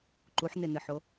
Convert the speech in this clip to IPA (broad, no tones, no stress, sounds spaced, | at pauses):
ǃ u ħ n̪ e n̪ ɨ ħ o